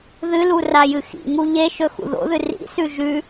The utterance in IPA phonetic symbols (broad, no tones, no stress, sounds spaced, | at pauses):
ð ɨ l u r a j ɨ x ḭ ŋ u ʎ e ʃ ɵ x ṵ ð o̰ ð ɨ r ḭ s ʉ ʒ ʉ